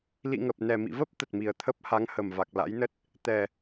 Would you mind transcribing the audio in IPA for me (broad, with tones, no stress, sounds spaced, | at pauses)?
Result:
l ḭ˧˨ ŋ ə˨˩ p̚ n ɛ˨˩ m ḭ˧˨ v ə˦˥ p̚ t̪ ə˨˩ t̚ m i˨˩ ə̯ t̪ʰ ə˦˥ p̚ h a˨˦ ŋ h ə˨˩ m v a˨˩ k̚ l a̰˧˥ j n ə˦˥ t̚ | t̪ ɛ˨˩